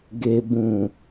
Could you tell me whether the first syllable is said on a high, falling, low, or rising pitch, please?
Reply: low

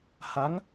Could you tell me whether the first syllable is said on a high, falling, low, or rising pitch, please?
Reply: rising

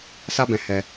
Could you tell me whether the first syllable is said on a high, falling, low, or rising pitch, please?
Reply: high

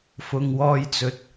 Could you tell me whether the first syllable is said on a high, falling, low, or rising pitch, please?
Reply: low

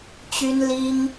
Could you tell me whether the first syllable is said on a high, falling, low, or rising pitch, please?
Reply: high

